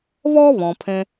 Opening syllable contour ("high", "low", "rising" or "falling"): high